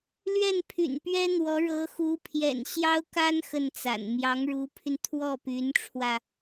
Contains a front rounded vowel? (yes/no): yes